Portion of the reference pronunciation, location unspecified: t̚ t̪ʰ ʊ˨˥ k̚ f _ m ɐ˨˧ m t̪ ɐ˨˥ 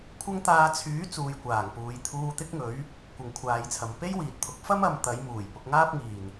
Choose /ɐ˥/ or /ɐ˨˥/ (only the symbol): ɐ˥